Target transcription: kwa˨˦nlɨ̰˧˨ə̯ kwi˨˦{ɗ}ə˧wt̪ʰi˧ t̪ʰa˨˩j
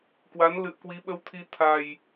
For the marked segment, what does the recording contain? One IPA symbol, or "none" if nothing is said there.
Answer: ɓ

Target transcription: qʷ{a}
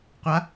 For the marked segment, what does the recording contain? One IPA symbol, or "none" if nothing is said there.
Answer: a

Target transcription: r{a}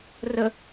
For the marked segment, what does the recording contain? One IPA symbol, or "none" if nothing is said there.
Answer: ə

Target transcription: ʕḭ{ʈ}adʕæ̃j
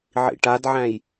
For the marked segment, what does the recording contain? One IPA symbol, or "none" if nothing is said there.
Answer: ʈ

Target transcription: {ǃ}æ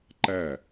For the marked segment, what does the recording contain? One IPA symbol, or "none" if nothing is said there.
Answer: ǃ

